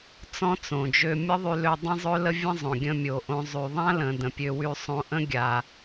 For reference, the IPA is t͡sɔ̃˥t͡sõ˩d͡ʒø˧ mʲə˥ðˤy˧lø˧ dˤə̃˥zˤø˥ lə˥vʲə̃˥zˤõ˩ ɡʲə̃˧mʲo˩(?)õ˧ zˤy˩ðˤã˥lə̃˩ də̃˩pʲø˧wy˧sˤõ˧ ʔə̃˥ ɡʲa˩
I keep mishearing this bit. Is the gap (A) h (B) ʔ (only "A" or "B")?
B